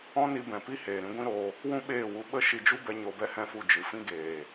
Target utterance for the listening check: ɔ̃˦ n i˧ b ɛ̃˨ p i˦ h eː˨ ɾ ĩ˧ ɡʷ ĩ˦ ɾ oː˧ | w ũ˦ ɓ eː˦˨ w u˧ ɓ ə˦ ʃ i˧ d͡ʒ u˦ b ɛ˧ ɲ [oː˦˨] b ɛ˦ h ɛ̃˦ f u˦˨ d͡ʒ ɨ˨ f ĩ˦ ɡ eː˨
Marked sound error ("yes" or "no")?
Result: yes